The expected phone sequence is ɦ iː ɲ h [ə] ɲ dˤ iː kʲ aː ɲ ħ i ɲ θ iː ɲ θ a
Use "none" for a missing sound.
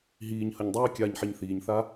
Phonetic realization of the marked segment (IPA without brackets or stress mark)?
ə